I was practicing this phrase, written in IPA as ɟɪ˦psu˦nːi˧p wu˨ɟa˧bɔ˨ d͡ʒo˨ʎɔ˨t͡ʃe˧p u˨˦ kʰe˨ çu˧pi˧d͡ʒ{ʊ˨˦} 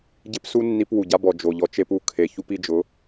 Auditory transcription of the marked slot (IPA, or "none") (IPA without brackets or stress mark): ʊ˨˦